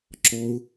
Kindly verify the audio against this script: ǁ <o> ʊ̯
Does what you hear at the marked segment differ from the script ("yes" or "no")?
yes